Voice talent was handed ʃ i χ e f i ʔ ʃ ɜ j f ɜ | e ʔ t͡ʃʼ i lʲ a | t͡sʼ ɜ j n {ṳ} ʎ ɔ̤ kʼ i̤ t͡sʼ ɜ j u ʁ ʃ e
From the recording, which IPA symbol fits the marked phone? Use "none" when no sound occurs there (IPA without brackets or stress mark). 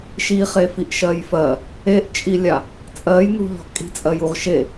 ṳ